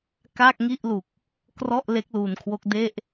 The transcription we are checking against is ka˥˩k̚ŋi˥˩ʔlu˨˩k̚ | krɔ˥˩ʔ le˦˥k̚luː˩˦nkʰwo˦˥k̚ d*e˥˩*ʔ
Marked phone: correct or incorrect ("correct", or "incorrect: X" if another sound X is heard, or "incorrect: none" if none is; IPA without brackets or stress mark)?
correct